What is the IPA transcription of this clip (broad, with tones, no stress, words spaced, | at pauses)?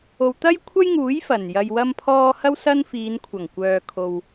o˨wt̪ɐ˥jkʷʰɐ˥jŋuː˨˥j fɐ˨˩njɐ˧jwɐ˥mpʰɔː˥ hɐ˥wsɐ˥nfiː˨˧n kʷʰɐ˨˩ŋkʷœː˨ kʰo˨w